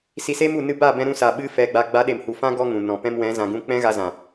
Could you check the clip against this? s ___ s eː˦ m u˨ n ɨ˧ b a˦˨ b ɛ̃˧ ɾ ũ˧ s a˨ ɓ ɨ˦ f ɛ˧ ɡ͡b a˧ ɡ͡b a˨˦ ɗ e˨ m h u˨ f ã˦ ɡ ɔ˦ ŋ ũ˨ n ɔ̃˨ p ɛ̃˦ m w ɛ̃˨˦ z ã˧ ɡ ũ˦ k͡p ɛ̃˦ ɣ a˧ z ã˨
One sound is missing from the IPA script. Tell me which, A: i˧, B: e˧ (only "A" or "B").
A